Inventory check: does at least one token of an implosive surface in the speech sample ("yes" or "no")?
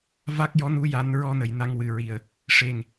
no